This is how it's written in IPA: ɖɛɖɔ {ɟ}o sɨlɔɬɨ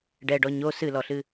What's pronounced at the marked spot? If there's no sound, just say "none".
ɲ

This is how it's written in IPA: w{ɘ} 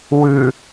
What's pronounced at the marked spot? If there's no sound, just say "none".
ʉ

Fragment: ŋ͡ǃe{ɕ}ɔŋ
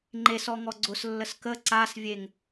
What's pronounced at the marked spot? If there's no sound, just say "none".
s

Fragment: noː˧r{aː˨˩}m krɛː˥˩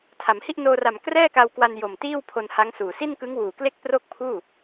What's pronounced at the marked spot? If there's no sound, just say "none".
a˨˩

